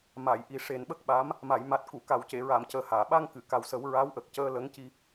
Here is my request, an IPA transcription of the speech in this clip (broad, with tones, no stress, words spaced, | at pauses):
ma˨˩˨jʔi˨˩ ʂe˨˩nɓə˦˥k̚ɓa˧˥m | ma˨˩˨j ma˨˩t̚ ku˨˩˨ ka˨˩˨wce˨˩˨ɹa˨˩˨m cəː˨˩haː˨˩˨ɓa˧ŋ kɨ˨˩˨ka˨˩wsə˨˩˦w ɹa˧˥w ʔə˨˩k̚cəː˧ lə˧˥ŋci˧